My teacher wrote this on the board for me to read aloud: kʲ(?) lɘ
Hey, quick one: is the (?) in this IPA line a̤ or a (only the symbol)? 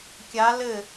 a